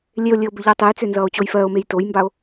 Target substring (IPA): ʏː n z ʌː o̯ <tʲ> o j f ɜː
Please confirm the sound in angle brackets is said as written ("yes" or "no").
no